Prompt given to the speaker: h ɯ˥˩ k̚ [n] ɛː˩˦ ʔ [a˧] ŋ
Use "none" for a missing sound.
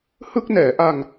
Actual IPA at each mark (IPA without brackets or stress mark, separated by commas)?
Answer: n, a˧